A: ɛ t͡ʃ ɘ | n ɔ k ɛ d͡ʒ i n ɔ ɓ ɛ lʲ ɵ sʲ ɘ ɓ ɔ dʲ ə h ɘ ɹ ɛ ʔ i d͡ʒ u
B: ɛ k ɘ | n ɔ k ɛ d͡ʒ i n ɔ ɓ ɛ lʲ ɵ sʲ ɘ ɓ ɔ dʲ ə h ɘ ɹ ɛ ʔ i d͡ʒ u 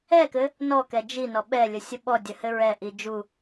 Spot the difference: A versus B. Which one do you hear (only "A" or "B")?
B